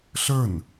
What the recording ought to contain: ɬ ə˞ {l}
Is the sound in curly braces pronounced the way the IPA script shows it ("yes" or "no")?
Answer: no